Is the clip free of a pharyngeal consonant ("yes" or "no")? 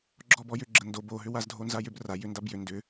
yes